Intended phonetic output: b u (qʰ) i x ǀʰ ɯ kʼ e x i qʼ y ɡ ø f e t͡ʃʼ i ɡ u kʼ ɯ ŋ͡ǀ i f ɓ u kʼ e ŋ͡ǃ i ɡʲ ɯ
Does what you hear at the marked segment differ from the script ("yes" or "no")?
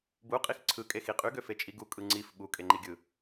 yes